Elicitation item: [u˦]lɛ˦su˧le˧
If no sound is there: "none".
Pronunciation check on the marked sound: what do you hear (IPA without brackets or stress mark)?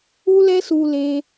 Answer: u˦